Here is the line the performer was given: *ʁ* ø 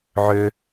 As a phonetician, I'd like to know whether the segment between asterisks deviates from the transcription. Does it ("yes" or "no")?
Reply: yes